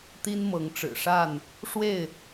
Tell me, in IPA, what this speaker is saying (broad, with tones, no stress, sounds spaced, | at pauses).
t̪ i˦ n m ɤ˨˦ ŋ ʈ͡ʂ ɻ̩˨˩ ʂ a˥˨ n | ʂ w e˥˨ ɪ̯